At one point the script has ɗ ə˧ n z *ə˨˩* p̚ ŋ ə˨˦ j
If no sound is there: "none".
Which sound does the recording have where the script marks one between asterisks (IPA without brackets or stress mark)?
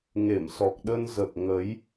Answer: ə˨˩